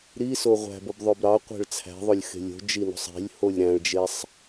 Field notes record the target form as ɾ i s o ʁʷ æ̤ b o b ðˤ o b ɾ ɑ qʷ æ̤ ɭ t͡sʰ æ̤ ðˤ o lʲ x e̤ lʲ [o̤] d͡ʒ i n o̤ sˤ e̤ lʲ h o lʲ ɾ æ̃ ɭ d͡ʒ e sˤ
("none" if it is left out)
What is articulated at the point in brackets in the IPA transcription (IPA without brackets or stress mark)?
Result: o̤